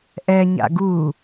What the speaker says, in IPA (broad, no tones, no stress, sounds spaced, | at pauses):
ʔ ɛ ɲ a̰ ɡ u